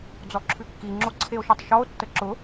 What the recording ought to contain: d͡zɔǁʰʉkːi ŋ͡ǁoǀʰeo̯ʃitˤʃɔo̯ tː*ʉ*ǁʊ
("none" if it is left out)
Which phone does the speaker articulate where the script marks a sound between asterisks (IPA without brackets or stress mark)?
ə